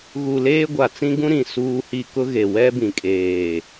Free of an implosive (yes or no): yes